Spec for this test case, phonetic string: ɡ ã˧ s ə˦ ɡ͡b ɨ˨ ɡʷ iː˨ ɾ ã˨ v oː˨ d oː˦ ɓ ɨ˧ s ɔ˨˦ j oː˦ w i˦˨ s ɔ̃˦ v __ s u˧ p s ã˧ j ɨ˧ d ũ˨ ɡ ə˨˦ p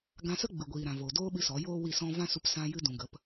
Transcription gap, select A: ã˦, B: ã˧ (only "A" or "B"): A